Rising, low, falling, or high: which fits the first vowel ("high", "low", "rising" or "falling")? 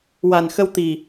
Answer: low